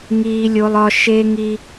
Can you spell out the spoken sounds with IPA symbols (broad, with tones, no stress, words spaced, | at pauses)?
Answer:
ŋiː˦lʲo˦lˠɒ˦ ʃe˦ŋi˦